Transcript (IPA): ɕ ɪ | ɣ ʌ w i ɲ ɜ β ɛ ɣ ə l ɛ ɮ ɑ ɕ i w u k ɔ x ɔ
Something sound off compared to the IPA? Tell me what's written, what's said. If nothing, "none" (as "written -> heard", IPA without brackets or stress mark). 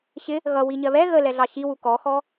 none